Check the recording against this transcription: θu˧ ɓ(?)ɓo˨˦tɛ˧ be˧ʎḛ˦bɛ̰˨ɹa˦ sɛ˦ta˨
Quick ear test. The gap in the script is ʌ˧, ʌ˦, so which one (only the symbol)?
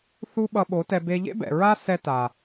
ʌ˧